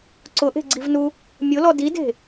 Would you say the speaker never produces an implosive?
yes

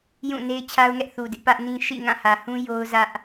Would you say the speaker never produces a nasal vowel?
no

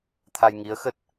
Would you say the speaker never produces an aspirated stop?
no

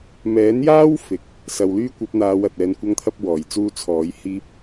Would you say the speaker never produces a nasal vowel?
yes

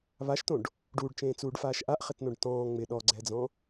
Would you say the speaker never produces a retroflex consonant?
no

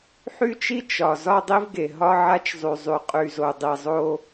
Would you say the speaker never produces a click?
yes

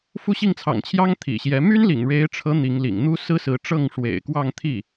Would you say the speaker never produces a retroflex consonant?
no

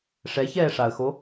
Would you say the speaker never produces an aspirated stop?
yes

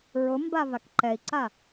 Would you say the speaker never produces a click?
no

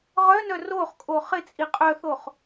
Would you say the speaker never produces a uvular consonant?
no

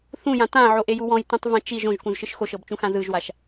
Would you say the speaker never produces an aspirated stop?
yes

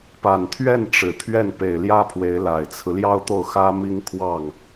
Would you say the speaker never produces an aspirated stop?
no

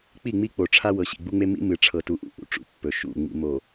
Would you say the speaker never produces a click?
yes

